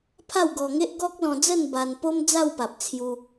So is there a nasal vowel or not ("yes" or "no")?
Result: yes